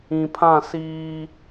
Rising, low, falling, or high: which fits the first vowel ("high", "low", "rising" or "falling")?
low